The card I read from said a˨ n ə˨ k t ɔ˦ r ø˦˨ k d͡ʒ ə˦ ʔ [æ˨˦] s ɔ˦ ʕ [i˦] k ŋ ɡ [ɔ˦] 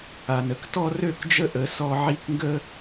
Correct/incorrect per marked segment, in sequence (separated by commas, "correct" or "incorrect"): incorrect, correct, incorrect